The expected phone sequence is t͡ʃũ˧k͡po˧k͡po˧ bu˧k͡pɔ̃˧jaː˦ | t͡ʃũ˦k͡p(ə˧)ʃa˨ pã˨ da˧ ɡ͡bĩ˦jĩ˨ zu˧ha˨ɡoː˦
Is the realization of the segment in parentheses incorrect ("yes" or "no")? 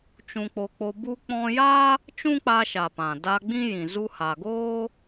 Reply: yes